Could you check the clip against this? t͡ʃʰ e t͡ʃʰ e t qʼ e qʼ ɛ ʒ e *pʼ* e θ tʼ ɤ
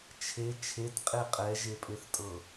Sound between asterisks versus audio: correct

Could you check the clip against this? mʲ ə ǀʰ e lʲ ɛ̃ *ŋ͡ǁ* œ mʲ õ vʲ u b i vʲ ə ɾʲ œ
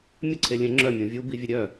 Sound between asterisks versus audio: correct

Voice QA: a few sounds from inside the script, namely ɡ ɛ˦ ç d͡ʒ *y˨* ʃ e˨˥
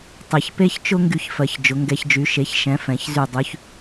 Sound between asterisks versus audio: incorrect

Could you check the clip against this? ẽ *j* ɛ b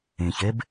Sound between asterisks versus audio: incorrect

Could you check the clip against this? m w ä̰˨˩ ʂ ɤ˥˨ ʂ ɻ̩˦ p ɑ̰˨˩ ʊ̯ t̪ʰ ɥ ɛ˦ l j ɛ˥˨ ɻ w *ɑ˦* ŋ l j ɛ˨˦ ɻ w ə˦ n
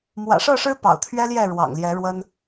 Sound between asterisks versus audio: incorrect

